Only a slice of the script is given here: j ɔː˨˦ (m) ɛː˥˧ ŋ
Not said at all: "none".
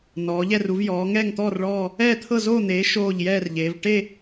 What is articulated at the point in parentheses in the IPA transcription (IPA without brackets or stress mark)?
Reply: ŋ